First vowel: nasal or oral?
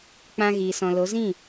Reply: nasal